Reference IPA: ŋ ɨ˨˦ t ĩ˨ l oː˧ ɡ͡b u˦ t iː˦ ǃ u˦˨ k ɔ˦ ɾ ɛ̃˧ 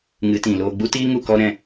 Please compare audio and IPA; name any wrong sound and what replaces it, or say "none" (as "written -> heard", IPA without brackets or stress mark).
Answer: ǃ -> ŋ